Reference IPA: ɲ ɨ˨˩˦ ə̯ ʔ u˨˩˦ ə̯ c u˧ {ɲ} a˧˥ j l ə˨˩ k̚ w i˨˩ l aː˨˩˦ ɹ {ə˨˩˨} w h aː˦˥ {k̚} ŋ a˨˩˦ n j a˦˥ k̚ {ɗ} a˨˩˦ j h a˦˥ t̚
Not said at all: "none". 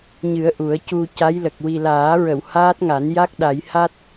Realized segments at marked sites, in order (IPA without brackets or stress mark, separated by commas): c, ə˨˩˨, t̚, ɗ